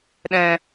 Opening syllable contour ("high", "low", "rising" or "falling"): low